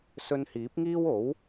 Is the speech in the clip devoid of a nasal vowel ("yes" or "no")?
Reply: yes